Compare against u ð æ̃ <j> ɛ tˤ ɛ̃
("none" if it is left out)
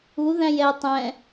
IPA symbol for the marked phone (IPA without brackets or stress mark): j